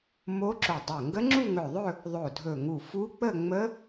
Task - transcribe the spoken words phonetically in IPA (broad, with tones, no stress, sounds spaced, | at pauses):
m o˦˥ ǁ o˧˩ dˤ o˧˩ ŋ ɡ ə˦˥ ŋ͡ǁ u˥˧ ŋ ɵ˧˩ ðˤ ɵ˥˧ | ðˤ o˧˩ dʱ ɵ˧˩ ŋ u˧˩ f u˦˥ k͡p ə˥˧ ŋ͡m ə˦˥